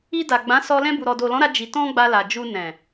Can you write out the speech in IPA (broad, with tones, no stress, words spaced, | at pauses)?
i˧ da˨ɡ͡bã˨˦ sɔ˧ lɛ̃˧bu˨ɾɔ˨ do˨lɔ̃˨˦ɾa˧ d͡ʒi˧ tɔ̃˦ɡ͡ba˧la˨ d͡ʒu˧nɛ̃˨